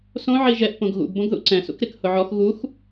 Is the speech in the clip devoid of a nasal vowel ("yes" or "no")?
no